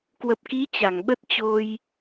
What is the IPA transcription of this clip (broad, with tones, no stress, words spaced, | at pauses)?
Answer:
kwə˨˩p̚ki˨˦ t͡ɕa˧˩ŋɓə˦˥t̚ t͡ɕo˧j